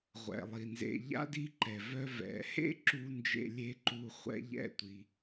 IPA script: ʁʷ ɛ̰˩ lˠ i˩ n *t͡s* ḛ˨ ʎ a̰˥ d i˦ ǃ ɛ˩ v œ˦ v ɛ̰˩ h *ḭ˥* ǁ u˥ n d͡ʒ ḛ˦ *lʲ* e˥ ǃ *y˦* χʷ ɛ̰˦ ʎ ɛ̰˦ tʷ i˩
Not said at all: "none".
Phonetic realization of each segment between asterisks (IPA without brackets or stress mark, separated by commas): z, ḛ˥, lʲ, u˦